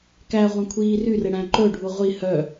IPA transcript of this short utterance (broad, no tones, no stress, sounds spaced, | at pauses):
k æ ʁʷ æ̃ kʷʰ iː r y r e ɽ æ̃ ǃ ɵ ɖʱ u ʁʷ i h œ